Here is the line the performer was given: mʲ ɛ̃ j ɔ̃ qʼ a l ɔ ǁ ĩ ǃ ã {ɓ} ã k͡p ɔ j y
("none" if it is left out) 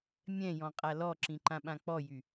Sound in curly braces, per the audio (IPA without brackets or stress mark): ɓ